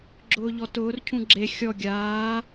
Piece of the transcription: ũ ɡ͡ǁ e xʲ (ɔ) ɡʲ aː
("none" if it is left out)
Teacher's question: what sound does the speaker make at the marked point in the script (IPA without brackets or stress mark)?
ɔ